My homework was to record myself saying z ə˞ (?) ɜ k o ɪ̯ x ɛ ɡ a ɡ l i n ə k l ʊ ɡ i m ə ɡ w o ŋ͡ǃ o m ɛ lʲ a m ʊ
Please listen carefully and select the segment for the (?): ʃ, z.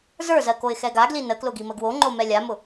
z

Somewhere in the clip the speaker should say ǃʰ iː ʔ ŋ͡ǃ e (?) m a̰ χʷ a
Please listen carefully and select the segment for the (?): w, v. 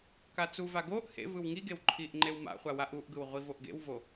w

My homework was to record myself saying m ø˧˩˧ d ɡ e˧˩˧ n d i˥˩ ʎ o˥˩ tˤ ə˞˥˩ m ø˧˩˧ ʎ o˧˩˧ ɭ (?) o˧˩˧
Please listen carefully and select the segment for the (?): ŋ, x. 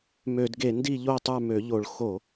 x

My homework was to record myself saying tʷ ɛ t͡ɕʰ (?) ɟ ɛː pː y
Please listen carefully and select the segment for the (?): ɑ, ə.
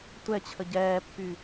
ə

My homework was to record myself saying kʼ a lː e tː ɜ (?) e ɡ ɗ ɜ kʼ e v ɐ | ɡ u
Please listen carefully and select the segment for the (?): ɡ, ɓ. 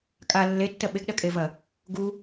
ɓ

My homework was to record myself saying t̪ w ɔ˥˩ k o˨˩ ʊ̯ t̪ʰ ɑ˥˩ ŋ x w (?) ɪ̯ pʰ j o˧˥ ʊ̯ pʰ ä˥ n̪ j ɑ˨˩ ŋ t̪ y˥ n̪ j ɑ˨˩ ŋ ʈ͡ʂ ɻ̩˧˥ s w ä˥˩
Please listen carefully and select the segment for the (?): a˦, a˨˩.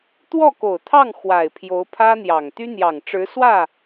a˨˩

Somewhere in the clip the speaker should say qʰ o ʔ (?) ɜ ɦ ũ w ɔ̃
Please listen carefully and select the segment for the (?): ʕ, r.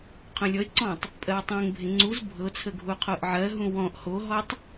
ʕ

